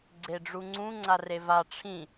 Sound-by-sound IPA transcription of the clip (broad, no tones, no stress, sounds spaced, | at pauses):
ɡ͡ǀ e ɖ͡ʐ u ŋ͡ǀ ũ ŋ͡ǀ a r e v a ʈ͡ʂʰ ĩ